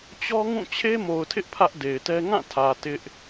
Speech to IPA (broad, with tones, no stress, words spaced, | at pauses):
t͡ɕɔ˦ŋũ˦˨ t͡ɕʰe˦mo˨ʊ̯tʰɪ˦ʔ pʰä˦ʔde˨ɪ̯tɛ˦ ŋã˦˨tʰä˨ tɪ˦ʔ